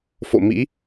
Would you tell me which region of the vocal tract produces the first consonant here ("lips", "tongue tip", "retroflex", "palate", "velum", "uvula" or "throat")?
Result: lips